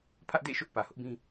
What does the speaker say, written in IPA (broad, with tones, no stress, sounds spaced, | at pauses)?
pʰ ä˦ ʔ d ḛ˦˨ ʃ ʊ˦ ʔ p ä˨ h ʊ˦ ʔ b ĩ˦